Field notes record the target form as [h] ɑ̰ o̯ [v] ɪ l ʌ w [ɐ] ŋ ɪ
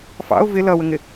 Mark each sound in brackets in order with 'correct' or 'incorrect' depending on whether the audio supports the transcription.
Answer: incorrect: f, correct, incorrect: ə

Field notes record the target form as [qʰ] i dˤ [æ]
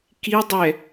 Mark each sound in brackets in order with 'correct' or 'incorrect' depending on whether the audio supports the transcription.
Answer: incorrect: k, incorrect: ɛ

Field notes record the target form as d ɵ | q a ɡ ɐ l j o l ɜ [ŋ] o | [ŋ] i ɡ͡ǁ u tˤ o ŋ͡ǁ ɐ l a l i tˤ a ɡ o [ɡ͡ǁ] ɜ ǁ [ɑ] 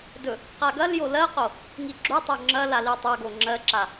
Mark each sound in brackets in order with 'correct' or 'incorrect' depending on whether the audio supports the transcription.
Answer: incorrect: q, correct, incorrect: ŋ͡ǁ, incorrect: a

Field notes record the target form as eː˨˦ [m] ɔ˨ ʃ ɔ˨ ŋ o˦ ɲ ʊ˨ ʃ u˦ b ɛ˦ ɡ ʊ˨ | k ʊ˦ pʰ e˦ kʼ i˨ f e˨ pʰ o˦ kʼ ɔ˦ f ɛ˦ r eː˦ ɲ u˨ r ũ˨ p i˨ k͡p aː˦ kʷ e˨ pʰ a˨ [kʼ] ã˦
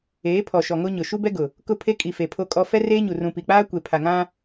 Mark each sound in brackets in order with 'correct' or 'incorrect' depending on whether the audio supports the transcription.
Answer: incorrect: pʰ, incorrect: ŋ

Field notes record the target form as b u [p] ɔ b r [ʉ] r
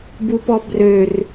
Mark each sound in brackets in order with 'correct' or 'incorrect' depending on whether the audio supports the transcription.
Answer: correct, incorrect: ø

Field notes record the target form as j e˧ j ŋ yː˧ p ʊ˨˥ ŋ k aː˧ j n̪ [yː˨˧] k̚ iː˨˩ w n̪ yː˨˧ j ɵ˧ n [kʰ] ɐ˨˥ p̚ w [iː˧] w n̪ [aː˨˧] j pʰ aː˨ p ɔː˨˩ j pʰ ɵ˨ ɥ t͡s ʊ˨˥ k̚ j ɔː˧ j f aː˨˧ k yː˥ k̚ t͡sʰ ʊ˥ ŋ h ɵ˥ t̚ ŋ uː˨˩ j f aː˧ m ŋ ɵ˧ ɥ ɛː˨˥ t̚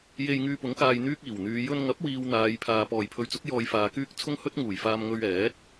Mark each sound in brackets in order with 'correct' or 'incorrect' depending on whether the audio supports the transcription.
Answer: incorrect: yː˥, incorrect: ŋ, incorrect: iː˨, correct

